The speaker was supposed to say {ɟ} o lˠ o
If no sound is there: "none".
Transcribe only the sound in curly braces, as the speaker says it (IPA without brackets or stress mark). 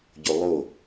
ɟ